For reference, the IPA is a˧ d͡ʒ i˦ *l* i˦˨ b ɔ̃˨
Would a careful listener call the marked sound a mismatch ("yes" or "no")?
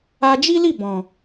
no